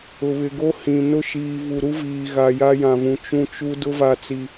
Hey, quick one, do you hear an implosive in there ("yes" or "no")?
no